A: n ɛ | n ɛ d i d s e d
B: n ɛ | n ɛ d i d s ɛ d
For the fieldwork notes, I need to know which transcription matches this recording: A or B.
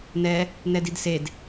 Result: A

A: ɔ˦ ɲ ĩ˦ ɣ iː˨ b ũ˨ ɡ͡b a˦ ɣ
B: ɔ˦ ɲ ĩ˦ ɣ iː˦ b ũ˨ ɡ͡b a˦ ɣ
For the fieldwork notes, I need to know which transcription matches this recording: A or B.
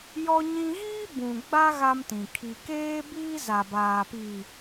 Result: B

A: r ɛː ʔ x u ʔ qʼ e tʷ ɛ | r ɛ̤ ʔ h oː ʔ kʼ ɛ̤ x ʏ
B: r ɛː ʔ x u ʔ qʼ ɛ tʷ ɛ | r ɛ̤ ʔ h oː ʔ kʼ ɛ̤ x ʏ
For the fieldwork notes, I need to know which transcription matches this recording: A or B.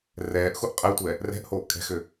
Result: B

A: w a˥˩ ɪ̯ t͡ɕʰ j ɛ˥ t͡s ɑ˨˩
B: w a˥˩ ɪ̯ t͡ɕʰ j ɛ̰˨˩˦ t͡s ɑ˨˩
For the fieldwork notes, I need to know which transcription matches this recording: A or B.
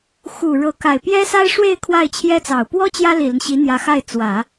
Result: A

